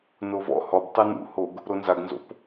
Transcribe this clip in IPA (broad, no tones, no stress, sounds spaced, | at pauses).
n o v ɔ̰ h ɔ b tˤ i n ṵ h o ɡ | ɾ o n z a ɡ n z o̰ p